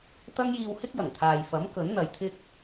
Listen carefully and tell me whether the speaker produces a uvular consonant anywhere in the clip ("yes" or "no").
no